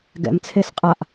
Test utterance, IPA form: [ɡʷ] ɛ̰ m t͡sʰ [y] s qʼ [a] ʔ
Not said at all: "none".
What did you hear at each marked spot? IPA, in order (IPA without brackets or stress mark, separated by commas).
ɡ, e, a